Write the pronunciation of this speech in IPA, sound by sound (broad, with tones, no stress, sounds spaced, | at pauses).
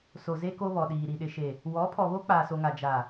s o˨ z e˦ k o˦ β ɔ˨ ɗ iː˨ ɾ i˨ ɗ ɪ˨ ʃ e˨ | w ɔ˨˦ pʰ ɔ˨ β o˦ k͡p aː˨ s o˨ ŋ a˨ d͡ʒ a˨